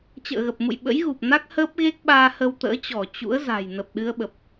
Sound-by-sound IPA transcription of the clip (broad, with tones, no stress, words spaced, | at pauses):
t͡ɕə̰ː˧˨ɣə˨˩p̚mṵ˧˨j ɓə̰˧˥jɣu˨˩p̚na˦˥k̚ həː˦˥p̚ɣe˦˥k̚ɓaː˧ hə˧wt̪ə̰ː˧˥t͡ɕɔ˧˩ t͡ɕṵ˧˥ə̯za̤˨˩j nə˨˩p̚ɗɨ˧ə̯ɓə˨˩p̚